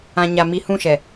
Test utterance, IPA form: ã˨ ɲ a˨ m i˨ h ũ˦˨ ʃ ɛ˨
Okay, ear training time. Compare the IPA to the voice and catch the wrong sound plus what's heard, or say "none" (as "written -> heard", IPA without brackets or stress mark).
none